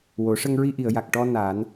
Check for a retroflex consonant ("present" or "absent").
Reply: present